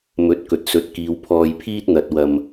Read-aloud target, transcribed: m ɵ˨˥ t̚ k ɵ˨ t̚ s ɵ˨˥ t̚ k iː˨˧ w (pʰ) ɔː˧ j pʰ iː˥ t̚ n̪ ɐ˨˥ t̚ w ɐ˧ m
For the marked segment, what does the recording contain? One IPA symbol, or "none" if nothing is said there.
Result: pʰ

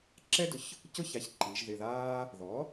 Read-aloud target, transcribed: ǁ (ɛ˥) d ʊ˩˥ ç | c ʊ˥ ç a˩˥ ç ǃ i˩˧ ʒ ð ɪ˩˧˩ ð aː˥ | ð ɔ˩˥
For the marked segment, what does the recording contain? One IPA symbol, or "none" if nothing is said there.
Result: ɛ˥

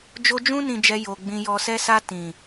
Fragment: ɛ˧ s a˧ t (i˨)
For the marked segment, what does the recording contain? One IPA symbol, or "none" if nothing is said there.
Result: ĩ˨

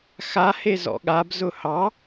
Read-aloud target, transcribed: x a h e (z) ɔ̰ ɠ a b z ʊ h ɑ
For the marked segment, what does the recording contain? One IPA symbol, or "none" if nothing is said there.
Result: z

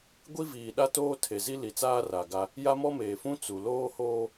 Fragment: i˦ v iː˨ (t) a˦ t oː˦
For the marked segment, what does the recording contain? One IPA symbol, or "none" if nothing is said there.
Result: ɗ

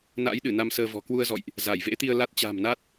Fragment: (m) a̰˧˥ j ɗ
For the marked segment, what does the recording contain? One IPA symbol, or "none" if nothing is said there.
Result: n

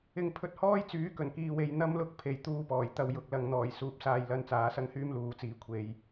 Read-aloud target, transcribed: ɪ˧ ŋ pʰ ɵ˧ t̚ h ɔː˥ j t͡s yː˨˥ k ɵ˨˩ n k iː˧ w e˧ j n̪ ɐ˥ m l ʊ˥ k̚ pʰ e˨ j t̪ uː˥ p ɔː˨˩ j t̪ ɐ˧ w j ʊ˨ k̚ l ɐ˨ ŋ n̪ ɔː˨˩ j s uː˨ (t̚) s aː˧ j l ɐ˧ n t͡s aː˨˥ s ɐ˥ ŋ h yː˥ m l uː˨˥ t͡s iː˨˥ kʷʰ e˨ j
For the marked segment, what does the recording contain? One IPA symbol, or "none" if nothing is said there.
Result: p̚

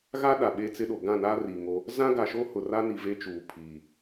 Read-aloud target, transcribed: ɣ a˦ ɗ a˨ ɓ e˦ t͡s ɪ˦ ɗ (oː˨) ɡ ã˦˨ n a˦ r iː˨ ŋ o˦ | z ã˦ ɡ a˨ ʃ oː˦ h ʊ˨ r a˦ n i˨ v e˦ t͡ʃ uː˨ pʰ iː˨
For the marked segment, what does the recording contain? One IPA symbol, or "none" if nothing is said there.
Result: o˨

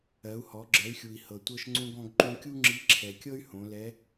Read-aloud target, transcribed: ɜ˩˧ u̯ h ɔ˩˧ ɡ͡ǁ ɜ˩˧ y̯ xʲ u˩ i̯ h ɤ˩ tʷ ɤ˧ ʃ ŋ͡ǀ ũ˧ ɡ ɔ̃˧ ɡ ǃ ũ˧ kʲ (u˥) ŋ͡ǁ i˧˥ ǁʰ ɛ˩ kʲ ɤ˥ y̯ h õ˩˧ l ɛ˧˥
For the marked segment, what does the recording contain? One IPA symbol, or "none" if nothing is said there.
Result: u˥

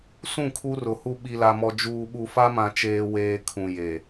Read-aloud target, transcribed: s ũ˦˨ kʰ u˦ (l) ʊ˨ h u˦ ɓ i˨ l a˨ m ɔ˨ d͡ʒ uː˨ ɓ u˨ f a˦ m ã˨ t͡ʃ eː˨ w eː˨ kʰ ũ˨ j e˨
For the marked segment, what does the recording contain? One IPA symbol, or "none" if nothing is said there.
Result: r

